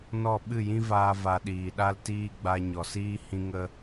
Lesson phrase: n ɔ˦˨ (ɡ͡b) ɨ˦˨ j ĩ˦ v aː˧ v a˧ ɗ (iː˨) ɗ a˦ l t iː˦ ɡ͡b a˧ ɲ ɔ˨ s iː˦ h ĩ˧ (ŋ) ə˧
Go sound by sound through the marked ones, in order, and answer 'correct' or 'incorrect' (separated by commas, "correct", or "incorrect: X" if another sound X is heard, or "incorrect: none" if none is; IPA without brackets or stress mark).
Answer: incorrect: ɓ, correct, correct